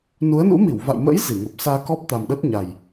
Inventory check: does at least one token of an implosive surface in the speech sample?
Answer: yes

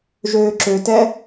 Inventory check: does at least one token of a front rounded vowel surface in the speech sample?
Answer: yes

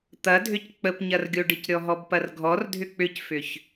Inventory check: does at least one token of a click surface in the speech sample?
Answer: no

